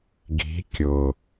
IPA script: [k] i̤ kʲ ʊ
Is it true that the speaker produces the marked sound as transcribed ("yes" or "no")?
no